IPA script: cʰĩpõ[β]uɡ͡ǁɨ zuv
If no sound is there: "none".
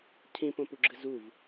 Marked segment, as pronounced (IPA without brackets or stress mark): p